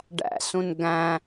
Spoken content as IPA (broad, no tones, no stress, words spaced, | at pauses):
ɖæ̰sũn ɡæ̃